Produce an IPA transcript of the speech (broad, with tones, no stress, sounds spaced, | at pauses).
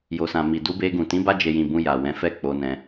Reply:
j o˨ s ã˨ m i˨ d u˧ b e˧ ɡ ũ˨ t ĩ˨˦ b a˧ d͡ʒ e˨ j ĩ˨ b ũ˧ j a˨ w ɛ̃˨˦ f ɛ˦˨ k͡p o˧ n ɛ̃˧